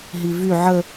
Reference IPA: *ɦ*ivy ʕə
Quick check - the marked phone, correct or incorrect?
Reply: correct